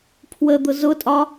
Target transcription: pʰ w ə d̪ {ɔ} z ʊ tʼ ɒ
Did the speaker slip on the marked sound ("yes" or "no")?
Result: yes